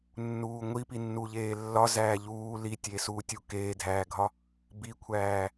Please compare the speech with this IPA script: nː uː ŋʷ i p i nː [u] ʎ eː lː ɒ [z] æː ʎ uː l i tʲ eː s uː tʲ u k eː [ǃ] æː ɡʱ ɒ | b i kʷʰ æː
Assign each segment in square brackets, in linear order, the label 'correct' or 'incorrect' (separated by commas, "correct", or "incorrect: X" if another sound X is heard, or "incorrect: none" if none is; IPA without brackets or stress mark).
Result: correct, correct, incorrect: dʱ